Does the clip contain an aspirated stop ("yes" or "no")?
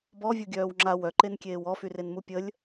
no